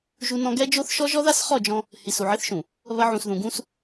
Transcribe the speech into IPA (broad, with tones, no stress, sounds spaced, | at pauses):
ʒ u˦ n ɔ̃˦ ɡ ɛ˦ d͡ʒ o˦ θ ʃ ɔ˦ ʒ ɔ˦ ð a˦ s χ ɔ˦˨ d͡ʒ ɔ̃˦ | h i˨ s u˨ ʕ ɪ˦ θ ʃ ũ˨ | β ɐ˦ ʕ ũ˨ s ð ũ˨ ɡ ũ˦ s